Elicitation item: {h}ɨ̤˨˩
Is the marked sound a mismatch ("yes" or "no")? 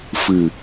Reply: yes